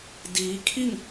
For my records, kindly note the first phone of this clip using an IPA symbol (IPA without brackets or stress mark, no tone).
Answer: d